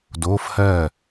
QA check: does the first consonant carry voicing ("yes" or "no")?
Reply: yes